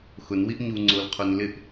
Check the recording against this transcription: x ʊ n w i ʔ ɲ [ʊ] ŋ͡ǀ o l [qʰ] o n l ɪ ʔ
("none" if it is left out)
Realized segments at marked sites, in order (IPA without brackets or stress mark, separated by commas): u, qʰ